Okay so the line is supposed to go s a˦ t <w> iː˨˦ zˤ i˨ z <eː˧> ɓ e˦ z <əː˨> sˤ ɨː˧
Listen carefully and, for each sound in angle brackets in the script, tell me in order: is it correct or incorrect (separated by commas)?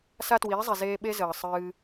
correct, correct, correct